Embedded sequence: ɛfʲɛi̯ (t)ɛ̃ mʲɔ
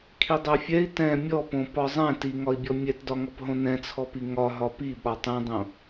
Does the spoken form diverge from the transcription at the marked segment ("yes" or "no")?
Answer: no